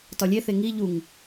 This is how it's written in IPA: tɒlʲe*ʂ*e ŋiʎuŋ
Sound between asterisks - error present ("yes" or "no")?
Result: yes